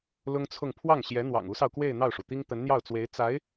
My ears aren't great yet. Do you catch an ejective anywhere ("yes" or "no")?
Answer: no